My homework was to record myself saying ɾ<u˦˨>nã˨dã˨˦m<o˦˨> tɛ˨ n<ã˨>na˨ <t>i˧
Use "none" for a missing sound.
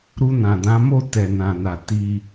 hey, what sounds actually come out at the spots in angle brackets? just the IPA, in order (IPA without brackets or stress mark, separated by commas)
u˧, o˦˨, ã˨, t